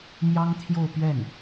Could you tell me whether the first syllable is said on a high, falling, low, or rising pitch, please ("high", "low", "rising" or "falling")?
high